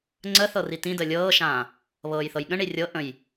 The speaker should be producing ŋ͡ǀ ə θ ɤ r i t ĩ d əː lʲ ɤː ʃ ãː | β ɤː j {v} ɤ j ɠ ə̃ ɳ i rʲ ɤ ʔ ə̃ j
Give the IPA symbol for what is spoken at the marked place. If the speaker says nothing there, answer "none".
θ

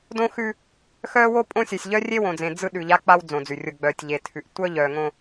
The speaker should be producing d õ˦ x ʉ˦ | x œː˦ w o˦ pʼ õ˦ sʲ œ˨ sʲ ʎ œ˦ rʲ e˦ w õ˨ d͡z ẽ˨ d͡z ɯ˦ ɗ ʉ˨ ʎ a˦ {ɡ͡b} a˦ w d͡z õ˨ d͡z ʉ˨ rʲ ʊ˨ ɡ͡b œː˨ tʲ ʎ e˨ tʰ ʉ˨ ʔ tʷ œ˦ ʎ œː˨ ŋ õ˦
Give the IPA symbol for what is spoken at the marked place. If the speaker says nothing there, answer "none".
k͡p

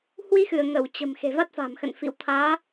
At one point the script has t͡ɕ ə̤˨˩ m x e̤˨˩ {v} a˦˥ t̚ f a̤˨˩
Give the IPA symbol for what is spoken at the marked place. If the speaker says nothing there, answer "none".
v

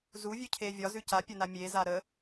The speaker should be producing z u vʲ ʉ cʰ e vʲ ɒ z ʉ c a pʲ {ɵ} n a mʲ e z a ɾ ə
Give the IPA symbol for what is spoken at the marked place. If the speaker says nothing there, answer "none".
ɵ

